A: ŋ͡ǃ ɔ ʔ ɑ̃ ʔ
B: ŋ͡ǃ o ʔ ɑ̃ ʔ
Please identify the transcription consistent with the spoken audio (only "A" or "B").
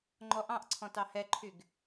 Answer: A